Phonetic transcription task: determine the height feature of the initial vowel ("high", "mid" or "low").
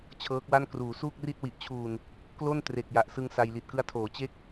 mid